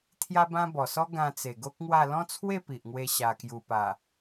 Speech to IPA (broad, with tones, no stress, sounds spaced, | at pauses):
t̪ʰ j a˦ b ã˦ b ɔ˨˩ s ɔ˦ ɡ ã˧ t͡s e˨˩ ɡ o˦ k̚ ŋ w a˥˧ l ɔ̃˦ t͡sʰ w e˥˧ p i˨ ʔ ŋ w e˧ ɕ a˧ k j u˧ p a˨˩